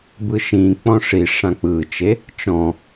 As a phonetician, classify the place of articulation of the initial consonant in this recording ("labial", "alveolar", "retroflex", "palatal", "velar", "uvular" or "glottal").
labial